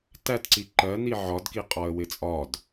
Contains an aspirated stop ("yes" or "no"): no